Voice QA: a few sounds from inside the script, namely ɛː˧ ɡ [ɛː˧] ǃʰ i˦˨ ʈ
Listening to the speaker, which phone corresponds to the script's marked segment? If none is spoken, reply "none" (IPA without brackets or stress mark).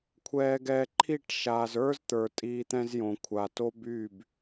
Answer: ɛː˧